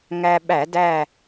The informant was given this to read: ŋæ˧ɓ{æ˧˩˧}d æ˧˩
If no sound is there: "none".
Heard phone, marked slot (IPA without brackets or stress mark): æ˧˩˧